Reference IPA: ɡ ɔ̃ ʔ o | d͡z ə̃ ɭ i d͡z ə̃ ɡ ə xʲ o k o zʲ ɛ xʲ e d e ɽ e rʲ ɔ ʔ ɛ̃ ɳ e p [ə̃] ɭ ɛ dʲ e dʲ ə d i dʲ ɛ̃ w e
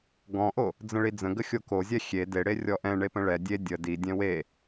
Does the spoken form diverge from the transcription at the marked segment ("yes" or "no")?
no